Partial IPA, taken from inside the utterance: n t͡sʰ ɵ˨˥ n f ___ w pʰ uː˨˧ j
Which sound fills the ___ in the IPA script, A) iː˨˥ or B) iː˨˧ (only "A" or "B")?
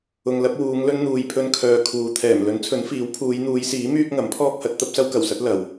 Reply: A